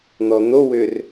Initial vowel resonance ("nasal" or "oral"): oral